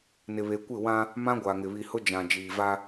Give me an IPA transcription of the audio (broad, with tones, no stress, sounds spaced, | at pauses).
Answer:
n ɪ˨ β e˨ kʷ ɪ˦˨ w ã˦ | m ã˦ ɡʷ a˨ ŋ ɪ˨ β i˨ h ʊ˦ d͡ʒ ã˨ d͡ʒ iː˨ v a˦